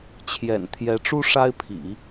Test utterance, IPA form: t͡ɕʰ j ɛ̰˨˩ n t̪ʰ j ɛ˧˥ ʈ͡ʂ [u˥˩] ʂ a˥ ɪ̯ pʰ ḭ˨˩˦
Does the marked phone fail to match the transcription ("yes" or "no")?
yes